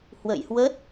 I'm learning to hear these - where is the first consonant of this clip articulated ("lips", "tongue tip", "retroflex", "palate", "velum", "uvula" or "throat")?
throat